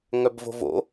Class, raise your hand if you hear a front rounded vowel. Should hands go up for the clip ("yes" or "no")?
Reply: yes